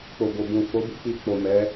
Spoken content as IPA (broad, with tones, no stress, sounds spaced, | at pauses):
k͡p o˨ b o˨ b ũ˨ f o˨˦ b i˧ k͡p i˧ k͡p o˨ m ɛ˨˦